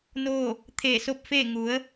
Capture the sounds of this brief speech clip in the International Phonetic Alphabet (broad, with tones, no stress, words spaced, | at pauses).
noː˥˨ | t̪ʰeː˧˩so˥˨p̚feː˥˨ ŋu˩˧ə̯